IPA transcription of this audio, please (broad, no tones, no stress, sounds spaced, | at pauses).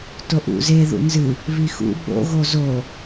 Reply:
t o ʔ ṵ z e ð ṵ n z ɨ | β i x ṵ ɓ o̰ ɣ o z o